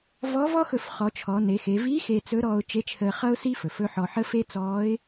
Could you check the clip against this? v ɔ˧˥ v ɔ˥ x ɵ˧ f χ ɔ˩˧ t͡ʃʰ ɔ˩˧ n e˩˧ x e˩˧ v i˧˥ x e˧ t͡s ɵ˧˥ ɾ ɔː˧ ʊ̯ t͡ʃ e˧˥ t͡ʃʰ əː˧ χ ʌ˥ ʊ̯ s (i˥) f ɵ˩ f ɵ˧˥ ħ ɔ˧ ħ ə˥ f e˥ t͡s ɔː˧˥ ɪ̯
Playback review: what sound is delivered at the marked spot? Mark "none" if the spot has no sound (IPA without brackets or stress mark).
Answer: i˥